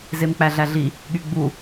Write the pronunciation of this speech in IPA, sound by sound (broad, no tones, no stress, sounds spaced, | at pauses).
z e m k͡p æ ɮ æ ɮ i | ɠ y ɡ͡b u